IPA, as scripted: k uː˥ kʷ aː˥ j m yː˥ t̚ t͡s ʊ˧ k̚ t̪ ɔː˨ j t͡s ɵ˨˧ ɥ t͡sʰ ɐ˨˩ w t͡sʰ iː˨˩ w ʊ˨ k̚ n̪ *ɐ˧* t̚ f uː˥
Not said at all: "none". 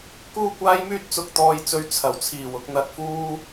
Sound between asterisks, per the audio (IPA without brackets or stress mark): ɐ˧